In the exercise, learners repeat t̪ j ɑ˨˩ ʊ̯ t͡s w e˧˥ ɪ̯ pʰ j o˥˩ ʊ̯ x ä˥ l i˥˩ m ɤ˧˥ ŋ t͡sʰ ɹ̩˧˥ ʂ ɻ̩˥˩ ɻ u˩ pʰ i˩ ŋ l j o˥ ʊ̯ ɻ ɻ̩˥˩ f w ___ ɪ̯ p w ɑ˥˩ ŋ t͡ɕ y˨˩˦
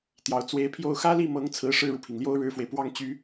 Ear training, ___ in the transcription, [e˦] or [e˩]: e˩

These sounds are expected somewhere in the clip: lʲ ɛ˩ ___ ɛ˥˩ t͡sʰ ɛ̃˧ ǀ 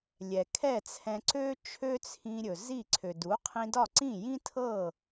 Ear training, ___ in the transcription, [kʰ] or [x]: kʰ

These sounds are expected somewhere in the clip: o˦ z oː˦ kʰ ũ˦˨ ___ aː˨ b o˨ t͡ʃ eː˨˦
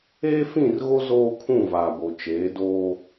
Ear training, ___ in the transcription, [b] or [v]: v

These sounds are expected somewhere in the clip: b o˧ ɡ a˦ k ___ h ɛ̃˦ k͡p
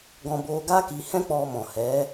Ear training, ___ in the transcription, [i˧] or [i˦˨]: i˧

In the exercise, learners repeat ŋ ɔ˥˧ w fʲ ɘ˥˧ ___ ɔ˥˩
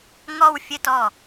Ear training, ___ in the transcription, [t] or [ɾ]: t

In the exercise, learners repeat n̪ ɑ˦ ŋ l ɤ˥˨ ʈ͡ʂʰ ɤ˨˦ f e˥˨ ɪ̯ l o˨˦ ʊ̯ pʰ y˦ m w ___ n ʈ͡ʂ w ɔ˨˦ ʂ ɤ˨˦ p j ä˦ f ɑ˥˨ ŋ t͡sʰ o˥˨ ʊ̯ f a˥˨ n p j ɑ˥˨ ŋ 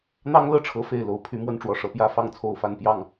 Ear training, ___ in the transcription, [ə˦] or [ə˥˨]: ə˦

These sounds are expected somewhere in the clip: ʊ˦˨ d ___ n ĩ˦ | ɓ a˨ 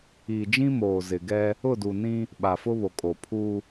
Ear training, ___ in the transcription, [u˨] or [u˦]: u˨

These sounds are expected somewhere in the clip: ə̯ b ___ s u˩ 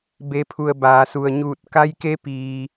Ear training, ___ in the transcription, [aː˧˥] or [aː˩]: aː˩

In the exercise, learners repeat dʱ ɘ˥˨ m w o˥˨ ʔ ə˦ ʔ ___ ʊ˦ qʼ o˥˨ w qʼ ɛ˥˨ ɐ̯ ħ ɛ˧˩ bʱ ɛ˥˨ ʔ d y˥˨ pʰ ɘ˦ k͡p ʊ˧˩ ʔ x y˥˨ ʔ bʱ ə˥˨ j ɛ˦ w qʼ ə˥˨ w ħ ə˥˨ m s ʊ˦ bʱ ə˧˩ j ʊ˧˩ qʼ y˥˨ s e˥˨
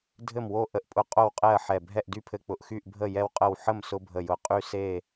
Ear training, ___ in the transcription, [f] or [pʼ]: pʼ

